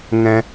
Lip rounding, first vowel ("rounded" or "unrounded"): unrounded